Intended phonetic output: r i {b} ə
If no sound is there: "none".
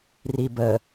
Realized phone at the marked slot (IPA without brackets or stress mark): b